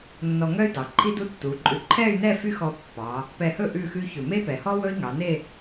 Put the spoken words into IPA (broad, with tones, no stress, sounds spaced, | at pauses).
nː ɔ˧ ŋ œ˥ y̯ d ɑ˩˧ ǃʰ i˥ d u˥ tː u˩˧ ǃʼ ʉ˧˩ ǃʰ ɛ˥˧ y̯ n ɛ˥˧ f y˥ x ɔ˧ pː ɑ˩˧ | p ɛ˧˩ h ɵ˥˧ ʔ ʉ˥˧ x ʉ˥ ç ɵ˧˩ m e˥ p ɛ˩˧ h ɔ˥ w ɵ˥ i̯ ŋ ɑ˩˧ n e˥˧